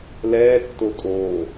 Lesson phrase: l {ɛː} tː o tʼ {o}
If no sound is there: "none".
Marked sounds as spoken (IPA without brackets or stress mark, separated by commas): ɛː, oː